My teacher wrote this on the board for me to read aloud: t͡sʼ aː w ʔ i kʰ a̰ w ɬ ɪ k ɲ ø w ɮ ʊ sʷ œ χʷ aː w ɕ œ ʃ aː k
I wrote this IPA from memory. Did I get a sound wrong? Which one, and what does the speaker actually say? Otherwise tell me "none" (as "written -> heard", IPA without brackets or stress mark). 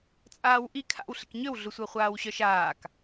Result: none